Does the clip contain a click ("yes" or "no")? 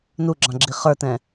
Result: yes